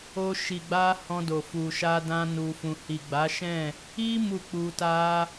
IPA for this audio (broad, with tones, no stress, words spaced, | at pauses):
o˧ʃi˨ɡ͡ba˧ hɔ̃˧do˨ fu˨ ʃa˧dã˧nu˨fũ˨ hi˨ɡ͡ba˨˦ʃɛ̃˦˨ | i˦ mu˦˨k͡pu˧ta˦